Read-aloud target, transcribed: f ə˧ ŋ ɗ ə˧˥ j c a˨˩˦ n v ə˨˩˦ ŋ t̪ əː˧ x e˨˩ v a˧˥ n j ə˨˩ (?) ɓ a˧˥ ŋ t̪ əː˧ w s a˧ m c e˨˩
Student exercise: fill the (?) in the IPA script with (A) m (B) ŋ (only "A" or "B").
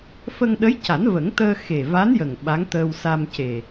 B